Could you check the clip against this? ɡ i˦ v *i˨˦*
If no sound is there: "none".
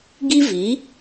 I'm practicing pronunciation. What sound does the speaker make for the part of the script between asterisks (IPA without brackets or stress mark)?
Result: i˨˦